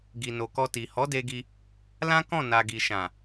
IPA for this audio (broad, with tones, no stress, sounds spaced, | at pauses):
ɡ i˨ n o˨ k ɔ˧ t i˨ h ɔ˨˦ d e˧ ɡ i˧ | l ã˦ k ɔ̃˦˨ n a˨ ɡ i˨ ʃ ã˨